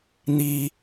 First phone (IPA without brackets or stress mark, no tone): n̪